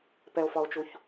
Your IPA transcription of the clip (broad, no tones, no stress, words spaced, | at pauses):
pɛo̯fɒo̯t͡ʃuç